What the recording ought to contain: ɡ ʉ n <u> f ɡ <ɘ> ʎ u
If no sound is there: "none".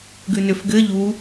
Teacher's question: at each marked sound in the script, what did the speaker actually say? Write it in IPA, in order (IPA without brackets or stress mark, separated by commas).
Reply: ʏ, ɘ